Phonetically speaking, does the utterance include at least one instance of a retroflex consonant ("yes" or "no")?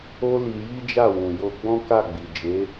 no